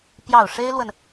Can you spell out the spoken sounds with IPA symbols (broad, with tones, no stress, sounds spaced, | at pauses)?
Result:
p j ɑ˥˨ ʊ̯ ʂ e˦ ɪ̯ l w ə˨ n